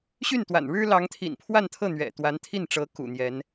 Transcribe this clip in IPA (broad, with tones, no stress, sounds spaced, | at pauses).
ɕ y˥˩ n t̪ w a̰˨˩ n ɻ ɻ̩˥ l ɑ˧˥ ŋ t̪ʰ ḭ˨˩ n pʰ w a˥˧ n t̪ʰ ɤ˥˩ n̪ ɥ ɛ̰˨˩ t̪ w a˧˥ n t̪ʰ i˥˩ n ʈ͡ʂ ɤ˧˥ k ṵ˨˩ n̪ j ɛ˧˥ n